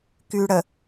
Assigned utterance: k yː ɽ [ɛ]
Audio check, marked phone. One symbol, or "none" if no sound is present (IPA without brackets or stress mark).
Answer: ə